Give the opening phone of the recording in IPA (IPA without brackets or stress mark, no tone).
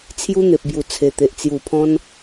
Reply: t͡sʰ